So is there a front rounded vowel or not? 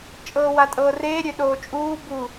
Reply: yes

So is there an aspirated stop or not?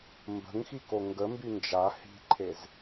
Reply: yes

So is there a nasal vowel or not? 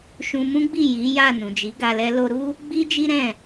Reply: yes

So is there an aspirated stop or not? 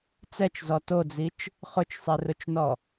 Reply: no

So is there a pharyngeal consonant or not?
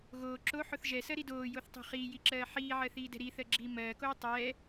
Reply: yes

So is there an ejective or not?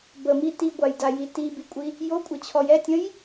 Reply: yes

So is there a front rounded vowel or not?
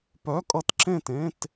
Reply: yes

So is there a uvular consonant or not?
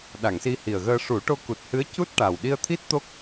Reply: no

